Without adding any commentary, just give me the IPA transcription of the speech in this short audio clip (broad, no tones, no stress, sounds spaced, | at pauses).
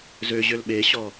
z ø ʑ ø l ɓ e ɕ ɔ